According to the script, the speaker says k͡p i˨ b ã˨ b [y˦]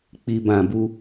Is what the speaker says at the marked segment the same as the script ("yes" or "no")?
no